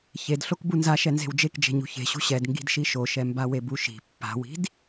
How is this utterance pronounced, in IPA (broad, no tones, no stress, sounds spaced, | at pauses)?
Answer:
ç e d ɬ o k b u n z a ʃ ɛ n z e̤ w d͡ʒ e k d͡ʒ e̤ ɲ ṳ ç e̤ ɕ ṳ ɕ ɛ d ŋ ɡ i̤ d ʃ i ʃ o ʃ ɛ m b a w e b u ʃ i̤ pː a̤ w i̤ d